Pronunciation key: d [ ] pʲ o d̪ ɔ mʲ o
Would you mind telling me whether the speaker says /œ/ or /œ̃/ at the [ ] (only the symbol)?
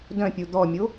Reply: œ̃